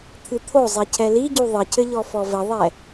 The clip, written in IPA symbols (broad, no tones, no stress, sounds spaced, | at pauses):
t̪ʰ ɨ t̪ʰ o zˤ i cʰ ɛ l i ɟ u ðˤ ɘ cʰ ɘ ʎ ɔ f ɔ v ɘ ðˤ ɛ